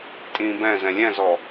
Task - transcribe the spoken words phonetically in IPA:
tʼ ĩː b ɛ̃ z ɛ̃ lʲ ɛ̃ z ɔ

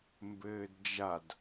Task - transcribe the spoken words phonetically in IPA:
m b ɘː d d͡ʒ a d

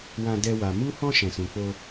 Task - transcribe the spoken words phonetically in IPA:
w ã˦ d ɛ˦ w a˧ m u˦ h ɔ̃˦ ʃ ɛ̃˧ s ũ˧ k͡p o˦

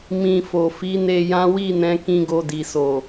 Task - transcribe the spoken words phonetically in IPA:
m ĩ˧ f o˨ f i˨˦ n e˧ j ã˦ w i˦˨ n ɛ̃˨˦ k ĩ˧ ɡ o˧ d i˨ s o˨

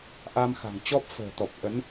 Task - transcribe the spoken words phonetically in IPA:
ʔ a˧ m x a̤˨˩ ŋ t͡ɕ ɔ˦˥ p̚ f ə̤ː˨˩ t̪ ɔ˨˩ p̚ ʔ ə˨˦ n

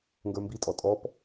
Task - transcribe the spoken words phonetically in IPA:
ŋ ɡ ə˞ m b i tʼ ɔ tʼ ɔ p

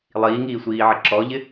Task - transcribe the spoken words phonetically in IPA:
lˠ iː ŋ iː sʷ iː ʕ ə ǁ ɔ ʎ ɪ

